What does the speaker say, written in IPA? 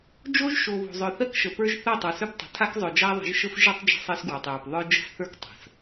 d͡ʒo˦ʒʃo˨ βo̤˨zˤœ˨θɜ˦kʃə˨ pə˞˦ʒθɜ˦˨ tˤə˞˨sœ˦ptˤə̤˨ tʰa˦kzˤœ˨d͡ʒa˦ ðˤə̤˨˦ʒʃə˦f ʒɨ˦tˤ d͡ʒə̤˦sˤɜ˦sɡwa˨tˤjə˞˨p ðˤə˞˦ d͡ʒə̤˦sθə˞˦k tˤə̤˨s

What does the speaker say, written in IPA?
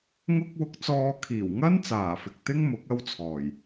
ŋʊ˥k̚wʊ˧k̚t͡sɔː˧ kʰiː˨˩wŋɐ˥n t͡saː˨˩fɪ˨k̚t̪ɪ˥ŋ mʊ˨˥k̚ɐ˥wt͡sʰɔː˨˩j

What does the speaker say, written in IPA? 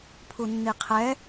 pʰunːiqʰɛ

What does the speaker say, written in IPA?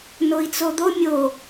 noi̯t͡sod̪o mʲo

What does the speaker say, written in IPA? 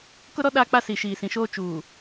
kʊ˦ɾɔ˦ ɗaː˦k͡pa˦ siː˨ʃiː˨sĩ˨ʃoː˦ t͡ʃuː˨

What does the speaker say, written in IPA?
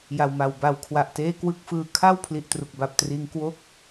ja˨˩wma˨˩w ba˩˦w kʰwa˨˩ʔteː˥˩kwɯ˥˩k̚fɯː˧ kʰa˥˩w pʰli˨˩ʔtru˨˩k̚ba˨˩p̚triː˧ŋ kwo˥˩k̚

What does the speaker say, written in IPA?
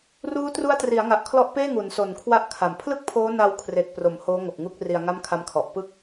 ruː˦˥tru˦˥a̯tri˩˦a̯ŋa˨˩ʔ kʰlɔ˦˥ʔpeː˥˩ŋu˩˦nso˨˩n kʰwa˦˥ʔ kʰa˨˩m pʰlɯ˥˩k̚pʰoː˦˥na˧w kʰre˨˩k̚pro˩˦m hoː˦˥ŋo˨˩k̚ŋu˦˥k̚ ri˧a̯ŋa˥˩mkʰa˦˥mkʰɔ˨˩ʔ pɯ˥˩k̚

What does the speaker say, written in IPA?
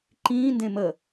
ǃĩːndẽ mə

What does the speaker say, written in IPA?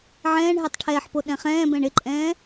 ʕɛ̃ːɳɦetˤ ʈʰɛːħpo ɗɛ̃χɛ̃ːbɛ̃ɳ ɪǃʼɛ̃ː

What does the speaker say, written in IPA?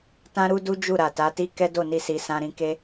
tã˦ɾu˦du˦ d͡ʒu˦˨ɾa˨ta˨˦ti˦ kɛ˦do˦˨ni˧si˨ sã˧ ɾĩ˧ke˦

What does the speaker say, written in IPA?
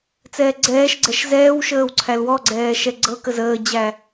t͡sɛːɡ͡ǀɛːʃɡ͡ǀɛʃ zɛːwʃəːw ǀʰælwɔɡ͡ǀɛː ʃɛɡ͡ǀɤkə zəːd͡ʑæ

